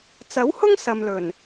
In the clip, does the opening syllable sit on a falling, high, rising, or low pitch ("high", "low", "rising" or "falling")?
rising